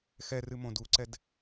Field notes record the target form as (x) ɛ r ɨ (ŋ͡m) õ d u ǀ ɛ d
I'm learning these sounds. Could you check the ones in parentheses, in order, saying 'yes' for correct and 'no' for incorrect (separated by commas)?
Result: yes, no